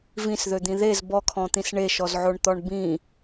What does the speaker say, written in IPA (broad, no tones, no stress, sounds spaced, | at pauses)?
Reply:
v ĩ s ð ø d̪ ĩ ð e z b ɔ kʰ ɔ̃ t̪ ĩ s ɳ e ʃ ɔ z ʕ o ɳ t̪ ɔ ɳ b ĩ